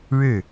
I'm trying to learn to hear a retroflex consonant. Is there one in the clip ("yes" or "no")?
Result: yes